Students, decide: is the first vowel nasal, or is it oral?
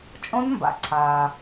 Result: nasal